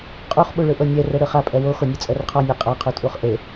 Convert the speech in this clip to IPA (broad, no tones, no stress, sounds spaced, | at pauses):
qʼ u χ ɓ u ɭ ɯ ʔ ɤ nʲ ɛ r ɛ ɽ ɯ χ a pʼ ɛ w o x o nʲ u t͡sʼ ɛ r qʰ ɔ nʲ a qʼ a qʰ u tʼ u χ ʔ e